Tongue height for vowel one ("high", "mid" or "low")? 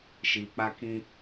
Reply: high